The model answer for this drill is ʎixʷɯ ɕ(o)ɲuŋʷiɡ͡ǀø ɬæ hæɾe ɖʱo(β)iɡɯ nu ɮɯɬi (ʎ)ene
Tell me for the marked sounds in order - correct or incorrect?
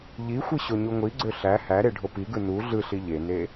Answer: correct, incorrect, correct

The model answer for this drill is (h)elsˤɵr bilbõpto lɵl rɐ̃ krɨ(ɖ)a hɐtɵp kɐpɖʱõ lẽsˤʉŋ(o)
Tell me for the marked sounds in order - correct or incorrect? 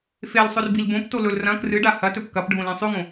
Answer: incorrect, correct, incorrect

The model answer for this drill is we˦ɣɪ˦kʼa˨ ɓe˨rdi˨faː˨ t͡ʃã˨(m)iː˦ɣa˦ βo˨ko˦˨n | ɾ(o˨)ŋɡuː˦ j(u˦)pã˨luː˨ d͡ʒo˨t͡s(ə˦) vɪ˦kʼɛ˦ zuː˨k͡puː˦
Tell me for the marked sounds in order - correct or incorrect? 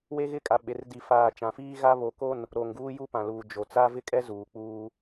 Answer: incorrect, correct, correct, incorrect

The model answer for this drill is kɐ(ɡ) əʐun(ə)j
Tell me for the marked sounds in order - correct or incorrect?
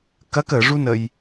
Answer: incorrect, correct

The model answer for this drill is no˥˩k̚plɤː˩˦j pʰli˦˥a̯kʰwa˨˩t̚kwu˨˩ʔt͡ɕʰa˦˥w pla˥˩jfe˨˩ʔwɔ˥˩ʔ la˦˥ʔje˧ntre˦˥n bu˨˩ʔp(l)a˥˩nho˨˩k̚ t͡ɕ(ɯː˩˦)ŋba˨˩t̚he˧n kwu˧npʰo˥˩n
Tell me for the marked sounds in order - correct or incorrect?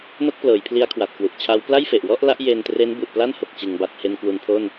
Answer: correct, incorrect

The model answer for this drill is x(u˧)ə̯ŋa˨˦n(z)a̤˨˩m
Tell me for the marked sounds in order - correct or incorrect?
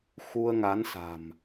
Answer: correct, incorrect

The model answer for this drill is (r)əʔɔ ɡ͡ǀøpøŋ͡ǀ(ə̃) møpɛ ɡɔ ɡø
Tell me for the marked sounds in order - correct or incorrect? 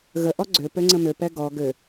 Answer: incorrect, correct

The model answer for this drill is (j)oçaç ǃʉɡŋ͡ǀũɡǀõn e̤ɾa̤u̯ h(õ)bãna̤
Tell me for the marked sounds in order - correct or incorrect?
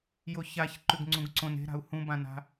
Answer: correct, incorrect

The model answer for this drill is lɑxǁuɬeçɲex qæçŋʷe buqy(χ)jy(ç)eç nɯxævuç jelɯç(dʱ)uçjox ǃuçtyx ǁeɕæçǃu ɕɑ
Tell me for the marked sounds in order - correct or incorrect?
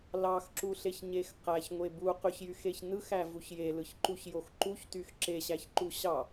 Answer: incorrect, incorrect, incorrect

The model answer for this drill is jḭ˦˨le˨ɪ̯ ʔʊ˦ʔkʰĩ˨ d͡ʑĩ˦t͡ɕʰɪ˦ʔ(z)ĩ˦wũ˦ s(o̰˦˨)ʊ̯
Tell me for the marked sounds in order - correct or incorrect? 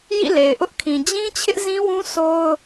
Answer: correct, incorrect

